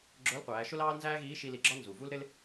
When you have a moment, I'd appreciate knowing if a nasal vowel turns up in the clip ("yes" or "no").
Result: no